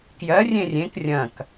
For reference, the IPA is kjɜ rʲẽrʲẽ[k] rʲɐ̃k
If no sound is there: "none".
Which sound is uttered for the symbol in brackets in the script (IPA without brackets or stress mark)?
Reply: k